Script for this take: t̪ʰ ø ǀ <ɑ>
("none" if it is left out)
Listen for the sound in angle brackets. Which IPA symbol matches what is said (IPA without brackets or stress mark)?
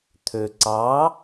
ɑ